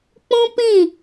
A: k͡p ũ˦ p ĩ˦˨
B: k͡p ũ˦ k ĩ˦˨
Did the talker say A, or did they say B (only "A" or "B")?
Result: A